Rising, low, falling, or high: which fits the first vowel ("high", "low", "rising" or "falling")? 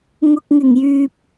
low